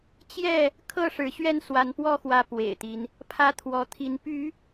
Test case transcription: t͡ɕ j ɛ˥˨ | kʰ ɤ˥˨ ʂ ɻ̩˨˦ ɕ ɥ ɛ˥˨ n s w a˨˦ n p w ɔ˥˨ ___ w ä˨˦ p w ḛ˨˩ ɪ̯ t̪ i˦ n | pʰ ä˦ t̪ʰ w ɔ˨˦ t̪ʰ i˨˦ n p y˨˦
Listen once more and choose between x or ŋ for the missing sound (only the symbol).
x